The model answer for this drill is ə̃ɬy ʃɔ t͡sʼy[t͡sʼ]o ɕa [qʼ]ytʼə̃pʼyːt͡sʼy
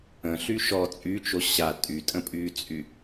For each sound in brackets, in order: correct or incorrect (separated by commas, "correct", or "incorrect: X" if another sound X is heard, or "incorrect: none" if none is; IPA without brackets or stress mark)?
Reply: incorrect: t͡ʃ, incorrect: tʼ